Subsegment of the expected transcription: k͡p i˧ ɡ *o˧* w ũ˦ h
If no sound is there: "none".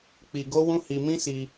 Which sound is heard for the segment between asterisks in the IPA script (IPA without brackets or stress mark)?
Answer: o˦